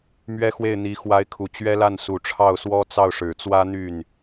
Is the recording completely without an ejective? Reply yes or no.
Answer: yes